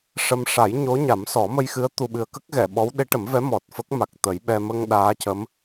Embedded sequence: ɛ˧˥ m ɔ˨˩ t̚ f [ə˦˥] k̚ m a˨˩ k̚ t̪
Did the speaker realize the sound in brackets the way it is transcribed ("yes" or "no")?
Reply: yes